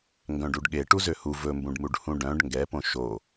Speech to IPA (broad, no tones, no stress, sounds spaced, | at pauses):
ŋ ɡ œ̃ ɖ u ɖ ɠ e ʈ u z ø h u v ɵ m b ũ ɖ m u ɖ h ũ ɖ œ̃ ɖ ŋ ɡ ɛ p õ ʃ o